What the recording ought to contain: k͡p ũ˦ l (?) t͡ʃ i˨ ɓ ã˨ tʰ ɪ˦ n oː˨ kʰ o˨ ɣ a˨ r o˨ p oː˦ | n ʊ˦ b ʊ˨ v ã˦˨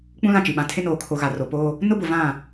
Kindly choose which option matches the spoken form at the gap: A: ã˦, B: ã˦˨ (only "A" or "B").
B